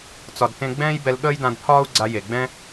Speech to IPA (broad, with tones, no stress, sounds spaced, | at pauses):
t͡s ɒ˨ d t ẽ˧ ɡ͡b ɛ̃ː˦ j b ɛ˧ l ɠ əː˦ j d ã˧ d pʰ ɒː˦ u̯ ɡ͡ǀ a˧ j e˨ ɡ͡b ɛ̃˦